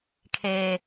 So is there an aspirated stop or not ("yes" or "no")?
yes